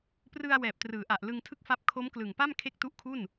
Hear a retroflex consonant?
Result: no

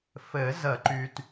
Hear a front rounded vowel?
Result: yes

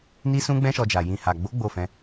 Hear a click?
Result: no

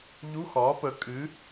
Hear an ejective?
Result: yes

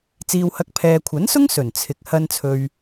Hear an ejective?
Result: no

